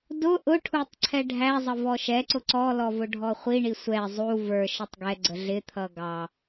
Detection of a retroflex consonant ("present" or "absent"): present